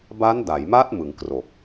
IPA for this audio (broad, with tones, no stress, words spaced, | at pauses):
ba˦˥nda˩˦jma˦˥t̚ mɯ˩˦ŋkro˨˩k̚